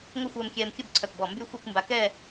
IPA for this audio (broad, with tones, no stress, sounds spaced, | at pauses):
ŋʷ ə˥˧ xʷ ɛː˧ m kʲ ɛː˧ m kʲ ə˥˧ b ǀʰ œ˧˩ k b ɔ˧˩ m b y˥˧ xʷ e˥˧ kʷ m b a˧ k ɛː˥˧